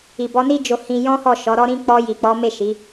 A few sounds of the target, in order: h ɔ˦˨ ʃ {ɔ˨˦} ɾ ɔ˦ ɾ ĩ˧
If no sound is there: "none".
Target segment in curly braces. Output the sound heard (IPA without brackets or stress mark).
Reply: ɔ˨˦